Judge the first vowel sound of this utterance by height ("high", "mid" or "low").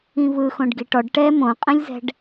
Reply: high